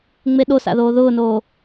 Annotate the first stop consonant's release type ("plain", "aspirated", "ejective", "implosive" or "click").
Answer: implosive